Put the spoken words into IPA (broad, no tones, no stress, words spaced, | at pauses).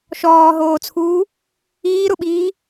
ʃɔːɦoːt͡sʰuː | iːɾʊɓiː